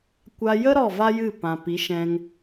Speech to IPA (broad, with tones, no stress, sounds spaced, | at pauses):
kʷ a˧ j ə˦ ɾ ɔ˦˨ v a˦ j ɨ˦˨ p ã˨ p i˨˦ ʃ ɛ̃˧ ŋ